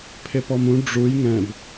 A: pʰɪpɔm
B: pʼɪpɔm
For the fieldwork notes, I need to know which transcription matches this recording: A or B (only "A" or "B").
A